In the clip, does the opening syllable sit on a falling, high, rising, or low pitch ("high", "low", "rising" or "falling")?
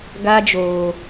high